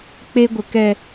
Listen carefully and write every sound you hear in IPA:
k͡p e˧ ɡʷ ə˨ k ɛ˨

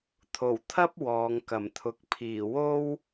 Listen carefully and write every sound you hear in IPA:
t̪ʰ o˨˩ w t̪ʰ ɐ˥ p̚ w ɔː˨˧ ŋ k ɐ˨˩ m t̪ʰ ʊ˨˥ k̚ pʰ iː˨˩ w o˥ w

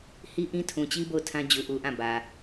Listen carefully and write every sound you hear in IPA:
h i˦ ʔ ĩ˦ tʰ ũ˨ t͡ɕ i˦ b o˦˨ ʊ̯ tʰ ã˦ d͡ʑ u˨ ʔ u˨ ʔ ã˦˨ b ä˨

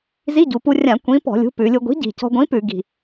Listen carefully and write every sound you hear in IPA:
z i˧˥˧ ɟ u˩˧ p u˧ rʲ ã˧˩˧ kʷ ĩ˨˥ p ɔ̤˧˩˧ lʲ ṳ˨˥ p ʉ˩˧ lʲ u˧ ɡʷ i̤˨˥ ɟ i̤˨˩ c ɔ̤˧ ɡʷ ĩ˨˥ p ʉ˧˩˧ ɡ i̤˨˩

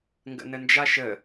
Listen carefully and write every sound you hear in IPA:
ŋ ɡ ə̰ n ə n d͡ʒ a ʃ ə

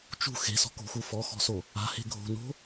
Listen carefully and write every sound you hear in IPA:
t͡ʃ ṳ x e̤ s ɔ̤ k o̤ x u f ɔ x ɔ̤ s o | a̤ h e̤ ɡʱ o̤ n o̤

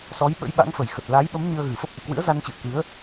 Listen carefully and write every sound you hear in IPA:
s ɔ˨˦ j ɓ ə̰˧˥ j ɓ a̰˧˥ ŋ f ə˨˩ j x ə˨˩ t̚ l a˨˦ j ɓ ə˨˦ m ɲ ɨ˧ ə̯ ɣ ɨ˨˩ f ə˦˥ p̚ ʔ ḭ˧˨ k w ɨ̰˧˥ ə̯ z a˧ n t͡ɕ ɨ̰˧˨ ə̯ k ɨ˨˦ ə̯

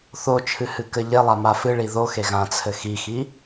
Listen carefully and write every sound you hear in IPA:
θ o t͡ʃʰ ɨ h ɨ k ɘ ʎ e lˠ a m a f ɨ ɭ i ð o x e ɣ ã t͡sʰ ɘ x i x i

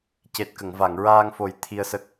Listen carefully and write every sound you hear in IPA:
c e˨˩ t̚ k ə˨˩˨ ŋ v a˨˩˨ ŋ ɹ aː˧ ŋ f o˨˩ j t̪ʰ i˧ ə̯ s ə˦˥ k̚

